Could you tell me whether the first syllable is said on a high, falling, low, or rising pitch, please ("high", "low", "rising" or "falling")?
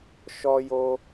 high